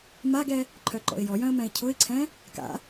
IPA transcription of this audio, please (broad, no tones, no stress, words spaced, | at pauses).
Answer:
maɡɛ | ǃʰœǃɔ̰ɪ̯jɔjœ̃ə̯ mɛ̃ɪ̯cʰʊɪ̯ǀʰɛ̃ | ka̰